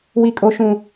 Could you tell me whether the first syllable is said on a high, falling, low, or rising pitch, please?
low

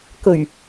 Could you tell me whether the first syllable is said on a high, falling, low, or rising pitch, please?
low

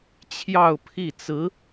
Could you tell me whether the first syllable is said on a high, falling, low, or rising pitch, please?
falling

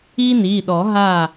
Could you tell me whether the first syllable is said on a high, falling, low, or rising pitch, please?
high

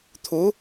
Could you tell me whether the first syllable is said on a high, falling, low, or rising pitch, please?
rising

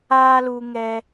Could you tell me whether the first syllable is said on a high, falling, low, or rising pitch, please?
high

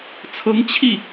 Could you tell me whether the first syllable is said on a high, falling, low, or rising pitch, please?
rising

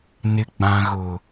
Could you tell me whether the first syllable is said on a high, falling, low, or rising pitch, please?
low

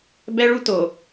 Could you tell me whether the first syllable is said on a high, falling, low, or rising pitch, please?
high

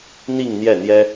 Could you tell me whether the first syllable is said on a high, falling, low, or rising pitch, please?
falling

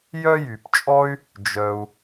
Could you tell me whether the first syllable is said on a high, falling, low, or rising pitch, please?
high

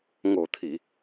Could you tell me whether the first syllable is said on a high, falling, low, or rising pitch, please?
low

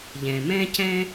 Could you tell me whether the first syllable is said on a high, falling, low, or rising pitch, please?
low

